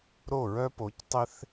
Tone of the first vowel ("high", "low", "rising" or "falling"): falling